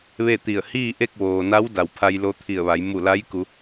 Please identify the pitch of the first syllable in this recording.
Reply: falling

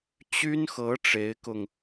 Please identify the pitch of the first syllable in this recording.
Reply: high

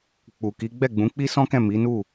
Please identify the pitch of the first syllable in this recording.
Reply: low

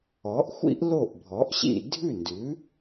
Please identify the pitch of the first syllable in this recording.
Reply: rising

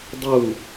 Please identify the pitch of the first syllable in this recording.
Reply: falling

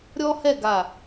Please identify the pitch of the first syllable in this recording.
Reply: high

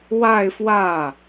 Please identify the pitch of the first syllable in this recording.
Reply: falling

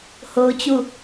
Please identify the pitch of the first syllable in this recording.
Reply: high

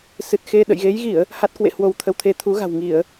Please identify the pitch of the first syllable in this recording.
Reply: low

